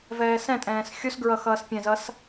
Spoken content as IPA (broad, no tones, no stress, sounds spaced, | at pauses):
v ɛː s ɛ̃ tʼ ɛ̃ː s xʲ u s ɡ ɹ ʌ x ʌː s pʲ ɛ̃ z ʌ s